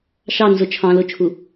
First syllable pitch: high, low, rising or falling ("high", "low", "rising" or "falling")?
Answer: falling